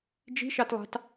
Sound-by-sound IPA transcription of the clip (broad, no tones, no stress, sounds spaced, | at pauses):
d͡ʒ i̤ ʃ ɑ t lˠ ɑ̤ t